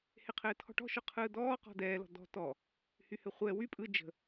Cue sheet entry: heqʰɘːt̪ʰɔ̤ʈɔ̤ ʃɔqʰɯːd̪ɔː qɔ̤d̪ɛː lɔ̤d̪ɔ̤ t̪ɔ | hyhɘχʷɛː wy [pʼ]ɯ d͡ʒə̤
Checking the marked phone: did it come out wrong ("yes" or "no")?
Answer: no